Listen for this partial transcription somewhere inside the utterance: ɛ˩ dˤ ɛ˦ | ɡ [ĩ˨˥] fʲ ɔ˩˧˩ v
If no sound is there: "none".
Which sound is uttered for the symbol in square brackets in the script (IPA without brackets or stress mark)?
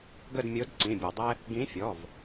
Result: ĩ˨˥